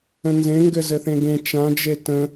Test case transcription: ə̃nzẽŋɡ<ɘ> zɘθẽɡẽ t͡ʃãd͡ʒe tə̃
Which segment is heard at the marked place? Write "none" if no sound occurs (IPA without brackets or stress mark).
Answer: ɘ